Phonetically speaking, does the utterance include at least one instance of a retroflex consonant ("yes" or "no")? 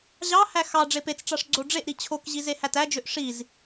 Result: yes